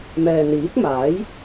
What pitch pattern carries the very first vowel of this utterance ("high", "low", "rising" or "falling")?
low